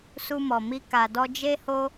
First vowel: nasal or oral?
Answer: oral